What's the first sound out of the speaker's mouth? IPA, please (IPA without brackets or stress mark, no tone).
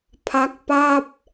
pʰ